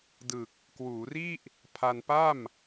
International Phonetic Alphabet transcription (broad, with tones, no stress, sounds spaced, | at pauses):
d ɯ˨˩ k̚ | k w uː˩˦ r i˥˩ ʔ | pʰ a˧ n p a˥˩ m